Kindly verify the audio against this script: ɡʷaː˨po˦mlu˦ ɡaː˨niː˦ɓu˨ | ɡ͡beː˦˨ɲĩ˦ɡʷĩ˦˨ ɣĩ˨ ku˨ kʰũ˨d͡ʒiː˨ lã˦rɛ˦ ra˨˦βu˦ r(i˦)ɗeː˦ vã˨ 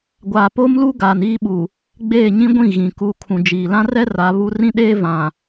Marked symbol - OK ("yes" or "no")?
no